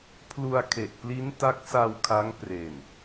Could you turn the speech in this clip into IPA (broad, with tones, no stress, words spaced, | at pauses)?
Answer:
pʰlu˧a̯ kʰe˨˩ʔpli˦˥nta˦˥k̚sa˧w kʰa˦˥ŋpre˨˩n